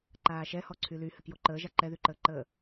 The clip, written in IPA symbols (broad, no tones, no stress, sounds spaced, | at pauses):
ǃ aː ʃ ɛ h ɔ ǀʰ y l y h ɘ k j o ǃ əː ʒ a ǃ ɛ ð y ǃ əː ǃ əː